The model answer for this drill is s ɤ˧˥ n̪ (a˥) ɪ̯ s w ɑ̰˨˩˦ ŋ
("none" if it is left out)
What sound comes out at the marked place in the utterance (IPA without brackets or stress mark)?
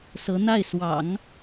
a˥˩